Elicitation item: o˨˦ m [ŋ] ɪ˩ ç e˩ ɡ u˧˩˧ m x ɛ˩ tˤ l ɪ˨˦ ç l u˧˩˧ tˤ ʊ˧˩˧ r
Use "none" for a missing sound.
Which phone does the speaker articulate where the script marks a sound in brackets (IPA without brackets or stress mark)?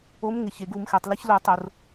ŋ